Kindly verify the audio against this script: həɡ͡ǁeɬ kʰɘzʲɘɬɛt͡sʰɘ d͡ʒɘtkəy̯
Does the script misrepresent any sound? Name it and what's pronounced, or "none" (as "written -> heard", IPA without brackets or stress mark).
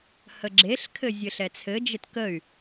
none